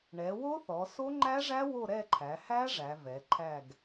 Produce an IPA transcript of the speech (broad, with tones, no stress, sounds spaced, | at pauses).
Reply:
ɳ ɛ˩˧ w o˦˥ θ ɔ˩˧ s o˦˥ ŋ͡ǃ æ˦˥ ʐ æ˦˥ w o˦˨ ɾ ɛ˦˨ ǃʰ æ˩˧ h æ˦˥ ʐ æ˩˧ v ɛ˩˧ ǃʰ æ˦˨ ɡ